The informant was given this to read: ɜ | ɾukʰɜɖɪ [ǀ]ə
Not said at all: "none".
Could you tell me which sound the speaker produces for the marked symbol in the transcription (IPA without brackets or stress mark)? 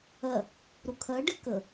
k